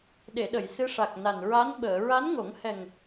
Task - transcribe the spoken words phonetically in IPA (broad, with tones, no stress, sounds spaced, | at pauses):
ɗ e˨˩˨ ɗ ə˨˩˨ j s ɨ˧˥ ʂ a˨˩ k̚ n a˨˩ n ɹ a˧˥ n ɓ əː˨˩˨ ɹ a˧˥ n ŋ o˨˩˦ ŋ h ɛ˨˩ ŋ